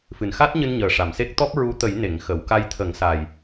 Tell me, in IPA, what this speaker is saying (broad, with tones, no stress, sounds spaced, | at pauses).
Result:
f ɨ˨˩ n x a˦˥ t̚ ɲ ɨ˧ n ɲ əː˨˩ ʂ a˨˩˨ m s e˦˥ k̚ t̪ ɔ˦˥ p̚ ɹ u˧˥ t̪ ə˨˩˦ j n e˨˩˨ ŋ x ə˨˩˨ w k a˧ j t̪ʰ ə˨˩˦ ŋ s a˨˩ j